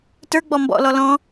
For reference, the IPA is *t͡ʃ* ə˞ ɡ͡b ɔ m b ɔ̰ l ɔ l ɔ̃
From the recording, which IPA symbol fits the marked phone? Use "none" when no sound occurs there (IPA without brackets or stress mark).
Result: t